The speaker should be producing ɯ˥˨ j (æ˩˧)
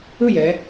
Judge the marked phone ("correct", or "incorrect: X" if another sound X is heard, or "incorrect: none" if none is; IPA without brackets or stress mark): incorrect: ɛ˩˧